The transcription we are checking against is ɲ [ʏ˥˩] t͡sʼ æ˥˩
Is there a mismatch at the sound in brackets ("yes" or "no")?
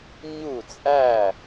yes